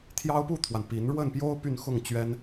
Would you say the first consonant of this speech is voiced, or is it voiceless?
voiceless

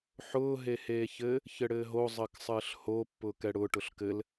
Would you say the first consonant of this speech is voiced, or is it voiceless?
voiceless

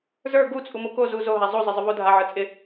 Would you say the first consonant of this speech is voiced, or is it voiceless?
voiced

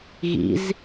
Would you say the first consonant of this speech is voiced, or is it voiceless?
voiced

